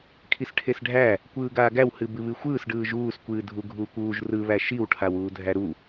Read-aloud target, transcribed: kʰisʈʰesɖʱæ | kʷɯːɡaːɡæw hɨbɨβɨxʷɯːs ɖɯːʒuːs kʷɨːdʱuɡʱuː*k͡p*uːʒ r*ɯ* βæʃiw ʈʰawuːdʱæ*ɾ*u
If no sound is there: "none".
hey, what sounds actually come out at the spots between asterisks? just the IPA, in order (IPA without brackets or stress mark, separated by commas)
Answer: kʷ, ɯ, ɾ